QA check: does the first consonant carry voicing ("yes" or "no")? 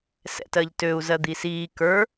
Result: no